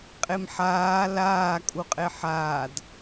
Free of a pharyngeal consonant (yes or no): no